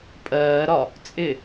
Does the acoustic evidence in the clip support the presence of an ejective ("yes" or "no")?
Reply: yes